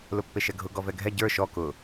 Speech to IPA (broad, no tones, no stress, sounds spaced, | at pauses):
l ʊ pː e ʃ ɛ ɡʱ ʊ ɡ ɔ v ɛ ɡʱ ɛ ɟ ə˞ ʃ ɔ k ʊ